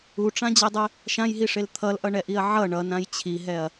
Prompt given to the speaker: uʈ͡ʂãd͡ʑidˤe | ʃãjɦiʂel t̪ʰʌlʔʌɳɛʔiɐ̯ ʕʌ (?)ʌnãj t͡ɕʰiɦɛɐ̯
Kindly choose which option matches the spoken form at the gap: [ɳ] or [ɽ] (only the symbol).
ɳ